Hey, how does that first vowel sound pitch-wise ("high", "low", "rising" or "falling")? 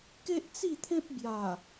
high